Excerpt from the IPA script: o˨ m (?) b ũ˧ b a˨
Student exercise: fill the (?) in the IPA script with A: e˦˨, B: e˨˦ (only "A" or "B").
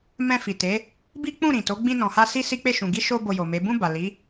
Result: B